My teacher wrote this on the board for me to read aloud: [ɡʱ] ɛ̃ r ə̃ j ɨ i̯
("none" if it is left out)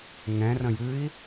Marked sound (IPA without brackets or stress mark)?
ŋ